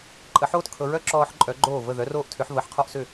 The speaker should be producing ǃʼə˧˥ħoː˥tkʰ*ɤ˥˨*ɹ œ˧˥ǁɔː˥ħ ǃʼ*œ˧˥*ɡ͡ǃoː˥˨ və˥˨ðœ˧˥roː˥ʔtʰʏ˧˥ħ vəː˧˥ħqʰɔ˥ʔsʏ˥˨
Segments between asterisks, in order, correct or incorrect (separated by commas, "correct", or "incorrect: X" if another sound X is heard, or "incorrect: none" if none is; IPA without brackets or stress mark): incorrect: ɤ˧˥, correct